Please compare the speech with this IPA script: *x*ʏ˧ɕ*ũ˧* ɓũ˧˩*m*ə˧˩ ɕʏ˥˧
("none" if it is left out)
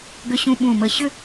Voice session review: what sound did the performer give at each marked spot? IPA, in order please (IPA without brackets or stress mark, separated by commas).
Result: ɡ, ũ˧, m